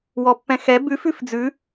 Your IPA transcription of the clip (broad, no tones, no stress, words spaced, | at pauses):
wɔpːɛ̃xɛ bʉf ʉfd͡zʉ